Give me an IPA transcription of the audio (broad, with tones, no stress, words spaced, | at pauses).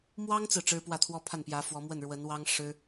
mwɑ˥ŋt͡sɹ̩˨ ʈ͡ʂɻ̩˥pwä˥˩t̪ʰwɔ˥ pʰa˥˩npjä˧˥ fwɔ˧˥ mwə˥˩nɻwə˧˥n wɑ˥ŋʂɻ̩˥